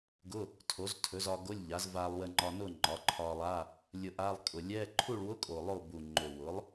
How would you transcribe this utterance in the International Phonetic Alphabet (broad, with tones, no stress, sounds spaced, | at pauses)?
ɡ ʊ˧˥˧ | tʰ o˩˥ z tʰ ɵ˩˥ z ɒ˧ ɡ o˧˥˧ lʲ ʎ a˩˥ z v a˧ lˠ w ə˧ ŋ͡ǃ ɒ˧ n ʊ˥˨ ŋ͡ǃ ɒ˩˥ ǃʰ ɒ˧ lˠ a˧˥˧ | lʲ ʊ˧ ʔ a˧˥˧ lˠ kʼ ʊ˨˩ lʲ ɛ˧˥˧ ǃʰ u˥˨ ɭ w ʊ˧˥˧ kʼ o˨˩ lˠ o˥˨ b u˨˩ ŋ͡ǃ ɵ˨˩ w ʊ˩˥ lˠ